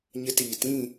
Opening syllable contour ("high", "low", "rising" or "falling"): high